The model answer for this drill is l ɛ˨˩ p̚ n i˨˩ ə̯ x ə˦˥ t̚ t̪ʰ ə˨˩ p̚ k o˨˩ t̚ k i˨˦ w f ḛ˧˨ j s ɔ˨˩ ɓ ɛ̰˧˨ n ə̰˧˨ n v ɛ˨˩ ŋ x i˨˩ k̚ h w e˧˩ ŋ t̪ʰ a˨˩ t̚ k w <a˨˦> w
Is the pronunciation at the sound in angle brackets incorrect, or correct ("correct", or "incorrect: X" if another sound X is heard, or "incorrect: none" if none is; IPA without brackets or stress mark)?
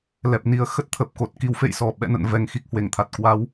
correct